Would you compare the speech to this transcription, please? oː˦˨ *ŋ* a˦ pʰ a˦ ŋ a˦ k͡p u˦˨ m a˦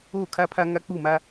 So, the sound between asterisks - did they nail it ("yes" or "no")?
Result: no